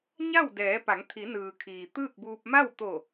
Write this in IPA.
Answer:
ɲ a˥˨ w d ɛː˩˧ p a˩˧ ŋ t̪ʰ i˩˧ n ɯː˩ kʰ iː˩ t̪ ɯː˥˨ k̚ b uː˧ p̚ m a˥˨ w t̪ o˧˩

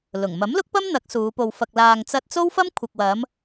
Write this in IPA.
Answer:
l ʊ˨˩ ŋ m ɐ˨˥ m l ʊ˥ k̚ p ɐ˥ m n̪ ɐ˨˥ k̚ s uː˨˧ p o˧ w f ɐ˧ k̚ l aː˧ ŋ t͡s ɐ˥ t̚ t͡s o˥ w f ɐ˥ m kʷʰ ɐ˨ k̚ w ɐ˨˧ m

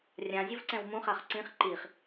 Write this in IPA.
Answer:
rʲ ã zʲ ʊ v ǀ ɛ̃ w m ũ χ a χ ǀ ĩ χ ǃ i χ

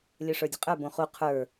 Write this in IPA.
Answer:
lʲ ə˞ ʂ ə˞ dʲ ə̤ qʼ ə˞ b õ χ u qʰ ə˞

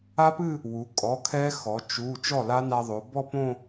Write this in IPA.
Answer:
a˦˥ p ɨ˥˧ | w u˩˧ kʼ ɔ˩˧˩ kʰ ɛ˦˥ x ɔ˩˧ t͡ʃ u˩˧˩ t͡ʃ ɔ˥˩ l a˦˥ n a˧ ðˤ o˩˧ b ɔ˥˧ p õ˥˧

